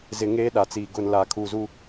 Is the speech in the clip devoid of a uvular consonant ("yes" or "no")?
yes